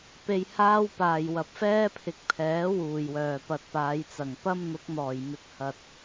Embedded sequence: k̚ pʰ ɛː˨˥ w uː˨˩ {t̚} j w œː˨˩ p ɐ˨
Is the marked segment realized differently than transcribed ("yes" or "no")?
yes